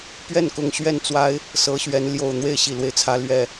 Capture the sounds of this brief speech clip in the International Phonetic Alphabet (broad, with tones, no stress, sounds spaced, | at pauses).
p ɥ ɛ˥˨ n k ʊ˨˩ ŋ ɕ ɥ ɛ˥˨ n t͡s w a˦ ɪ̯ | s ɤ˨˦ ɕ ɥ ɛ˨˦ n l j o˨˩ ʊ̯ n̪ w e˥˨ ɪ̯ ɕ i˨˩ l w e˦ ɪ̯ t͡sʰ ä˨˦ l ɥ ɛ˨˩